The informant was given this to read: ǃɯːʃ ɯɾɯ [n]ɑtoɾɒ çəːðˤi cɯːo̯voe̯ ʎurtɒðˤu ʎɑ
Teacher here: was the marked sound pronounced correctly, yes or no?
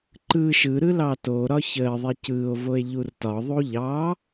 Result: no